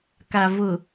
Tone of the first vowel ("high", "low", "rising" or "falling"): low